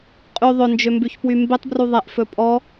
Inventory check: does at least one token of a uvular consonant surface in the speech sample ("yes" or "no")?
yes